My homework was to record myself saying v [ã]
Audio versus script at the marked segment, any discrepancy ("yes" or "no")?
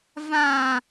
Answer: no